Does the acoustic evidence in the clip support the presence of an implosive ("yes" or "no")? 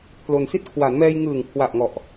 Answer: no